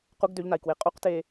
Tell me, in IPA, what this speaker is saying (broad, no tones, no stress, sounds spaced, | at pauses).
q u ɡ d ø ʎ n a i̯ k w e qʼ u q t eː